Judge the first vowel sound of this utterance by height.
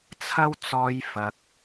low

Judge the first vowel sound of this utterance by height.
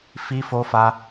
high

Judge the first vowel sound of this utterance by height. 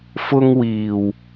high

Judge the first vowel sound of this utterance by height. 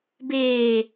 mid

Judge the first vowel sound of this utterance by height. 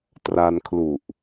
low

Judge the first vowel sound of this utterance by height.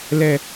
mid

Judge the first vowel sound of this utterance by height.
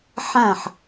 low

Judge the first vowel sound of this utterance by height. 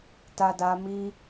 low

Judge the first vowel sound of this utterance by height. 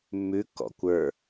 high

